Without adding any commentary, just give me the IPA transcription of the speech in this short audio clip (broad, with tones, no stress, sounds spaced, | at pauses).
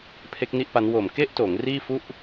pʰ e˦˥ k̚ n i˥˩ ʔ p a˦˥ n w o˨˩ m k e˥˩ ʔ t oː˩˦ ŋ r iː˥˩ f u˥˩ ʔ